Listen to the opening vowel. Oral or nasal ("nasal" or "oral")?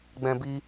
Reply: nasal